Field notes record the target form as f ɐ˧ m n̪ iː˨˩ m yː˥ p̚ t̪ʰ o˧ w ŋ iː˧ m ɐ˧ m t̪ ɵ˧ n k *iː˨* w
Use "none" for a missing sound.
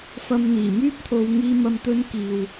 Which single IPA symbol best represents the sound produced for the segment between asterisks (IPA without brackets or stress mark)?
iː˨